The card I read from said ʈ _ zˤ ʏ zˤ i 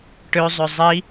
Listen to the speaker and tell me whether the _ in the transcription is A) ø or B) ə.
A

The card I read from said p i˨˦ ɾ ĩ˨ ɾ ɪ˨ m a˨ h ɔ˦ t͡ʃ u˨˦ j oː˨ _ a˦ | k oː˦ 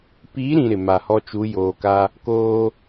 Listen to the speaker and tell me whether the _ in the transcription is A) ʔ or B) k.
B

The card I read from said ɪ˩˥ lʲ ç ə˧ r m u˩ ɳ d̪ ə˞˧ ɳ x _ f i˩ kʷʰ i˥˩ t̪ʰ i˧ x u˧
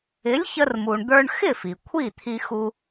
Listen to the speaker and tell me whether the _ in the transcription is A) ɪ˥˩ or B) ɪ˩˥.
A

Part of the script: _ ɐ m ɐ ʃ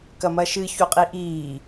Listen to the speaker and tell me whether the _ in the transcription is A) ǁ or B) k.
B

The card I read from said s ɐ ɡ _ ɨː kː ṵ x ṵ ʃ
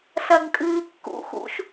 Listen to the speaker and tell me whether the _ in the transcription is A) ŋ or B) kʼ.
B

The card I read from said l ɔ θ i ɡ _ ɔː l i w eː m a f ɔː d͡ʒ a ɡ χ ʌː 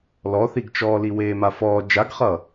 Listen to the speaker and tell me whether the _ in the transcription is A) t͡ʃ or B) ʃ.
A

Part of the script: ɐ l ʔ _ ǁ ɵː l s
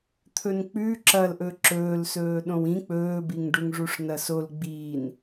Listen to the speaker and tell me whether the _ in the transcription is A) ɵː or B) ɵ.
B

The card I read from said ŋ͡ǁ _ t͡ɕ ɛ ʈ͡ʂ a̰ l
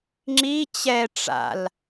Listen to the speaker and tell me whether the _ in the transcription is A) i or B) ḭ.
A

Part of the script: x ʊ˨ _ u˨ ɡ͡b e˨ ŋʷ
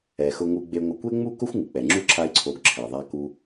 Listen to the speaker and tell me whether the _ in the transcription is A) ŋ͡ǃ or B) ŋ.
B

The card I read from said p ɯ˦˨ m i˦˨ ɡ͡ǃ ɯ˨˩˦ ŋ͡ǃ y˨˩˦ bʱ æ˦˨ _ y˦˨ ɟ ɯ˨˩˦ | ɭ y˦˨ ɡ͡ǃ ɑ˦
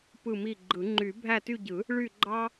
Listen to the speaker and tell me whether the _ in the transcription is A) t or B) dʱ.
A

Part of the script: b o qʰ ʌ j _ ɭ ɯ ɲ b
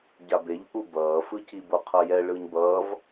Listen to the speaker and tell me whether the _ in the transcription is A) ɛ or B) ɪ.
A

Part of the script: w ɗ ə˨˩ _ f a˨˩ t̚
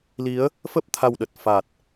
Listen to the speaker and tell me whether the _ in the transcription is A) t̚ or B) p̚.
A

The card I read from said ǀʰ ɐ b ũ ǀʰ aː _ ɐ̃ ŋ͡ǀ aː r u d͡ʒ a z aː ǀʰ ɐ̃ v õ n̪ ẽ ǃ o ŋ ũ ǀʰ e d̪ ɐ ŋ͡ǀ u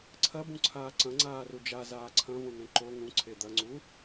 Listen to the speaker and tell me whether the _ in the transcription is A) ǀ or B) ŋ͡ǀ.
A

